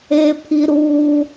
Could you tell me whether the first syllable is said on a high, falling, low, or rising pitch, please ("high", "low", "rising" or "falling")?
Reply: high